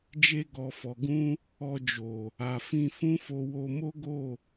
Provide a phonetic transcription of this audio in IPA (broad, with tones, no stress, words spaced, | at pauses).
d͡ʒe˧ɡɔ˨fɔ˨ɡũ˧ | ɔ˧d͡ʒo˨ | a˨fĩ˧ fũ˦fo˧ wo˧mo˦ɡo˦˨